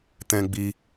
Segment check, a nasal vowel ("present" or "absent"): present